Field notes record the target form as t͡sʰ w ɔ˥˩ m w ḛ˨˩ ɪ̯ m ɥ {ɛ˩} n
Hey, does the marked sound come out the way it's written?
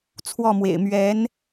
no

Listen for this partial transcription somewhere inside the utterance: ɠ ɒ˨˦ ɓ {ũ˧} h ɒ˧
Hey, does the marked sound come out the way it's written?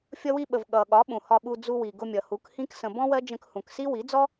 no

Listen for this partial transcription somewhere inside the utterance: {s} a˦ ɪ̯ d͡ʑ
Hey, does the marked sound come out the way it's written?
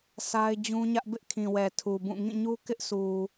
yes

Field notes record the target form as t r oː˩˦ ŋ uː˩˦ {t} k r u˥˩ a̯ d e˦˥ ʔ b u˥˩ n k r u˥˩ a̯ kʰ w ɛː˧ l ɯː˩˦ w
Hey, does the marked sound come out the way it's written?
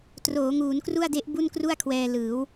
no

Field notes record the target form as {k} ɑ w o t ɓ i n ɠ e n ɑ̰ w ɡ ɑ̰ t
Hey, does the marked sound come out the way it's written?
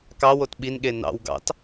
yes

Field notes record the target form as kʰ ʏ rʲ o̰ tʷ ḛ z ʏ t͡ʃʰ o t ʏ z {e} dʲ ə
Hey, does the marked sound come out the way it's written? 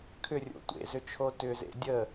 no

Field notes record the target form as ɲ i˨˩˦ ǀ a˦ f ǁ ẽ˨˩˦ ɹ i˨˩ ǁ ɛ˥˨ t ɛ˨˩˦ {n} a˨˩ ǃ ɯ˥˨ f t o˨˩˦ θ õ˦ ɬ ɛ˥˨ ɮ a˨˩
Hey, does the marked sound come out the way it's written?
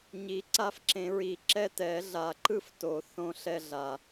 no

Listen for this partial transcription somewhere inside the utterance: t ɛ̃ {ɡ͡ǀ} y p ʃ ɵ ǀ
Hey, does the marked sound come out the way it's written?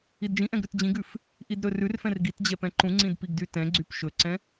yes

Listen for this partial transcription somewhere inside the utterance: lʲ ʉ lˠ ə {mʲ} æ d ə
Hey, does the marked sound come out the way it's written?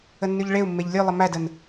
no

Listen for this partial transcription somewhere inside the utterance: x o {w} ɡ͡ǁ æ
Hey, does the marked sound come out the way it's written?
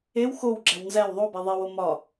yes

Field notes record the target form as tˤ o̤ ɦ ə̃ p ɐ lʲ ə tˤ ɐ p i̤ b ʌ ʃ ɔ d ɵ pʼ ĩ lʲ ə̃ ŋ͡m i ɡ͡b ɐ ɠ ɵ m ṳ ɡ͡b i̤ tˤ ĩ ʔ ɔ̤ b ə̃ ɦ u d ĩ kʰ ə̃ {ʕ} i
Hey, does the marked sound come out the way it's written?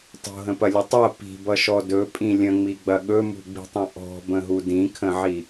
yes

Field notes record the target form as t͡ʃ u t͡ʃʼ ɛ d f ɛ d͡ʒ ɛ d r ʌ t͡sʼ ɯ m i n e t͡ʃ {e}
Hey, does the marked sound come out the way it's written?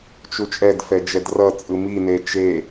yes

